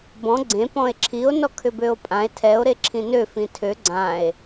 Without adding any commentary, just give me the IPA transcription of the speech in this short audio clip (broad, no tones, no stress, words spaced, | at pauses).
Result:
bɔ̃ ɡ͡ǀẽ pɔ̃e̯ǁʰio̯ nɔkʰʏbøo̯pʼãe̯ tʰɛo̯ ɾeǁʰĩnø fĩtʰø ɡ͡ǀãe̯